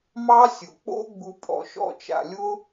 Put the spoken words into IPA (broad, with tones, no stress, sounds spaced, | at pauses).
m ɑ˦ sʲ ʊ˨ k͡p o̰˦ ɡ͡b u˧ pʼ ɔ̰˨ ʃ ɔ̰˦˨ t͡ʃ a̰˨ lʲ ʊ˦